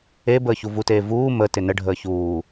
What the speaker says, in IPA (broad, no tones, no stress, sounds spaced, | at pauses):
e b əː ç u v u t eː v uː m ə t ɪ n ə ɖʱ əː ç uː